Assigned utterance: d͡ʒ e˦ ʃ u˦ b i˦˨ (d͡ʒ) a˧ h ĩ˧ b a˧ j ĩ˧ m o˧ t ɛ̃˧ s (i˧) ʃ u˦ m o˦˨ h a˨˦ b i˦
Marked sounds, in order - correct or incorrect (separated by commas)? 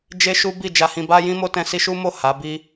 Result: correct, correct